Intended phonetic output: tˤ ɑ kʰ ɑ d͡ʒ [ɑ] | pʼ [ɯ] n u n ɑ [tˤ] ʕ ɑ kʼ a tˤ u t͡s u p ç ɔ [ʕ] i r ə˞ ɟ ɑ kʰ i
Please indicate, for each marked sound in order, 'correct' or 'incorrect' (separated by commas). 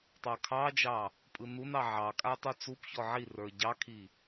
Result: correct, correct, incorrect, correct